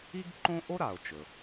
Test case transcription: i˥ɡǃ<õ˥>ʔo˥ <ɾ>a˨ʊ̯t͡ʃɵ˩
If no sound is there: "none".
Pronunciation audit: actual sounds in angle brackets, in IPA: õ˥, ɾ

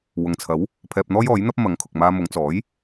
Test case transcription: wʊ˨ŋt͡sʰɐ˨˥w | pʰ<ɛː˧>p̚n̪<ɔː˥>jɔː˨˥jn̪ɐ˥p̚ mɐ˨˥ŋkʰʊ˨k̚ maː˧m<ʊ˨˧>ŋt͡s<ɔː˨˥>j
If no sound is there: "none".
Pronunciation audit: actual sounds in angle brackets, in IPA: ɛː˧, ɔː˥, ʊ˨˧, ɔː˨˥

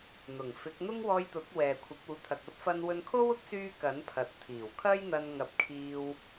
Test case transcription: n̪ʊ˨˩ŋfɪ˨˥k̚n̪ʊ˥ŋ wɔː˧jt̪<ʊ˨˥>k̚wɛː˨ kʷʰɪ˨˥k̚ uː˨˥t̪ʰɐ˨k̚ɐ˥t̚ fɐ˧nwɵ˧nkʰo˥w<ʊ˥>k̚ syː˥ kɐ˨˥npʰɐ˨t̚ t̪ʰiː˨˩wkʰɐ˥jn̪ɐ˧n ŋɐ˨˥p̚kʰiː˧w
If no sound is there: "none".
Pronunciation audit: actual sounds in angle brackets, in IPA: ʊ˨˥, ʊ˥

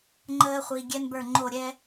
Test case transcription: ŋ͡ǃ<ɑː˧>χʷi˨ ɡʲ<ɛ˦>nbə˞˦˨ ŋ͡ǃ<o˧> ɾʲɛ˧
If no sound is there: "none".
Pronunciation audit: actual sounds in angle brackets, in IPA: əː˧, ɛ˦, o˦˨

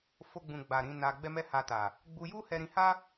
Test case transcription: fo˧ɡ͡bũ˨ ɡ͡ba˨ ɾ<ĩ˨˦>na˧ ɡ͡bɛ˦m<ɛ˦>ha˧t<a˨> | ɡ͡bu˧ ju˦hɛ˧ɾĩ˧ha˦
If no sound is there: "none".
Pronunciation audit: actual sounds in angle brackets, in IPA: ĩ˨˦, ɛ˦, a˨

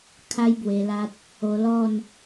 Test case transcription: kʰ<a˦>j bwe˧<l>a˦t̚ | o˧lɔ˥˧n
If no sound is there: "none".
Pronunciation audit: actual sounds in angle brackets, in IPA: a˦, l

